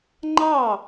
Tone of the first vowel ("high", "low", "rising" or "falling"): falling